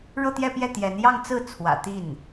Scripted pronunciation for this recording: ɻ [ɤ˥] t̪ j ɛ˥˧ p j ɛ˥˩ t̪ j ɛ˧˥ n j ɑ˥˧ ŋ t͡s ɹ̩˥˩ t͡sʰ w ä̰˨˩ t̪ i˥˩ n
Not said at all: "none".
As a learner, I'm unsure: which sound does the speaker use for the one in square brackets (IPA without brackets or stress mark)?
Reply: ɤ˥˧